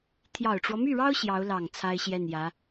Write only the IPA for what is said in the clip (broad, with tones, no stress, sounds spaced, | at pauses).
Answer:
t̪ʰ j ɑ˨˩ ʊ̯ ʈ͡ʂ w ɔ˦ m y˥˩ ɻ ɑ˥ ʊ̯ ɕ j ɑ˧˥ ʊ̯ l ɑ˨˩ ŋ t͡sʰ a˥ ɪ̯ ɕ j ɛ˥˩ n j ä˧˥